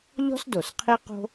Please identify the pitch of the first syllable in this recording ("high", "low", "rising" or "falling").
high